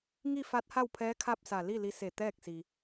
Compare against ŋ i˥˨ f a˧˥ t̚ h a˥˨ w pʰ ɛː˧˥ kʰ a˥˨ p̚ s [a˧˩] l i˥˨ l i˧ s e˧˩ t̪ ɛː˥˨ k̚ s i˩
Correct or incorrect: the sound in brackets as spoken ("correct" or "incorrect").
correct